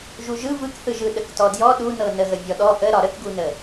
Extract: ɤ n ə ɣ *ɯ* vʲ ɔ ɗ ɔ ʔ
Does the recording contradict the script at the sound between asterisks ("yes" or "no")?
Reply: yes